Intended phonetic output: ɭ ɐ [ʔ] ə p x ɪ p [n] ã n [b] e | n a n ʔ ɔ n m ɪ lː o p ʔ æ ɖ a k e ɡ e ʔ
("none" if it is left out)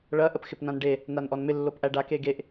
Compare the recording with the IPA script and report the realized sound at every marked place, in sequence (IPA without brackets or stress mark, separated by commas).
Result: ʔ, n, ɖ